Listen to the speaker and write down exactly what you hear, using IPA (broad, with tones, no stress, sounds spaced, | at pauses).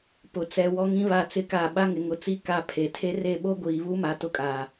p ʊ˨ t͡s ɛ˨ w ɔ˦ ŋ ĩ˦ β a˦˨ t͡s ɪ˦ k a˦˨ ɓ a˦ ŋ ɪ˨ ŋ ʊ˨ t͡s i˦ k a˦ pʰ e˨ tʰ e˦ r e˦˨ ɓ o˦ ɡʷ iː˨ β u˦ m a˨ t ʊ˦ kʼ aː˨